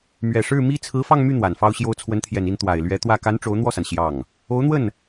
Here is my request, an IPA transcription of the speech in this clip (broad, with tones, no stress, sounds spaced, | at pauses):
m ɥ ɛ˨˩ ʂ ɻ̩˥˩ m i˥ t͡sʰ ɹ̩˧˥ f ɑ˥˧ ŋ m y˥˩ n̪ w a˨˩ n f ɑ˥ ʊ̯ ɕ j o˥ ʊ̯ t͡sʰ w ə˧˥ n t̪ʰ j ɛ˨˩ n i˥˩ n t̪ w a˨˩ ɪ̯ l ɥ ɛ˧˥ t̪ w ä˥˩ k a˧˥ n ʈ͡ʂ o˧˥ ʊ̯ n̪ w ɔ˥˩ s a˩ n ɕ j ɑ˥˩ ŋ | o˧˥ ʊ̯ n̪ w ə˥˩ n